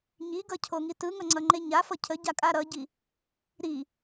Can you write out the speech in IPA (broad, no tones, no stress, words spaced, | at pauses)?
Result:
ɲiɡʌcʰoŋi tɯŋʌŋ͡ǀʌŋ͡ǃe ɲafʌ cʰəɟakʼa ɾʌɟi | ɾi